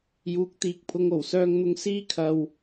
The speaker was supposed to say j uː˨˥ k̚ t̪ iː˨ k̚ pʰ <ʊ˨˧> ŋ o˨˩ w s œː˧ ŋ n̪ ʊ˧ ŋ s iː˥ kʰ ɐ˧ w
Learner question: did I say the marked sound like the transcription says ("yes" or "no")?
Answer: yes